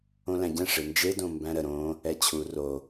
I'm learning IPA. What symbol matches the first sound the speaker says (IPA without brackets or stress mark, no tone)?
õ